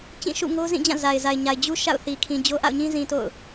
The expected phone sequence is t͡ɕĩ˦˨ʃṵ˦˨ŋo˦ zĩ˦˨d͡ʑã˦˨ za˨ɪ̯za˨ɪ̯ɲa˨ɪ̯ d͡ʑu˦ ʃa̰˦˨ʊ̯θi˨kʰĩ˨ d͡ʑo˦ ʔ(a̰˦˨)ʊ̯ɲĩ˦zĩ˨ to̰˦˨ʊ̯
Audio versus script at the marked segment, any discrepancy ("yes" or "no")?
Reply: no